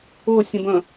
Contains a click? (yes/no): no